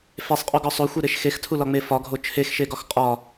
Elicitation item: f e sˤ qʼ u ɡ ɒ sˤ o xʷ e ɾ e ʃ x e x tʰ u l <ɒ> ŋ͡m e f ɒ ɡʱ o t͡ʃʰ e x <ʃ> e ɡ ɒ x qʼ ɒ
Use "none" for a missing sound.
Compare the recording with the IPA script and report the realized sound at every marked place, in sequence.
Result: ɒ, ʃ

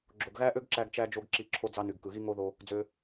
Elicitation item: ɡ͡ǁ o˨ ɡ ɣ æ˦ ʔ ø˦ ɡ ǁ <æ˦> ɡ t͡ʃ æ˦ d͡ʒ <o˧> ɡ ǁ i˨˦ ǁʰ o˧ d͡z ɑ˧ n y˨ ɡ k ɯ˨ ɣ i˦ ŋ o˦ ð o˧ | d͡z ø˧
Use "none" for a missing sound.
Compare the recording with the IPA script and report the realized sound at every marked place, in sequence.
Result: æ˦, o˧

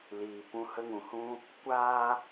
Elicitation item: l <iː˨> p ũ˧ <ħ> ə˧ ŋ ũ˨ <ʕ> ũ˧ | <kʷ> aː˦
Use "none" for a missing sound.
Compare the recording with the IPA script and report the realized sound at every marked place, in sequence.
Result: iː˨, h, h, kʷ

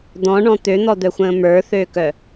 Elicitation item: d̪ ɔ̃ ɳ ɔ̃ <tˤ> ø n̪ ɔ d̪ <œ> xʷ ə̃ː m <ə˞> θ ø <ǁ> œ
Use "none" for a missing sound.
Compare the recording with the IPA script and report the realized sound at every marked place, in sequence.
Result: t̪, œ, ə˞, k

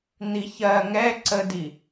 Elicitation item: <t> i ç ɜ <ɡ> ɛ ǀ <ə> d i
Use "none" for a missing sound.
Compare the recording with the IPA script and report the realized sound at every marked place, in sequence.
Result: n̪, ŋ, ə

